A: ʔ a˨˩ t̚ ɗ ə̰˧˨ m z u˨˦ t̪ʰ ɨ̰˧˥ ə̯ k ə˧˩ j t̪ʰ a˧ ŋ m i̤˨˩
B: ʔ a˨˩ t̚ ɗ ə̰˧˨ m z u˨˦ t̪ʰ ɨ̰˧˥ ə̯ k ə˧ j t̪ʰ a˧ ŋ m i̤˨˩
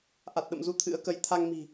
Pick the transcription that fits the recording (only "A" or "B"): B